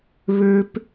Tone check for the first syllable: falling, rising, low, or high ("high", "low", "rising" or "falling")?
high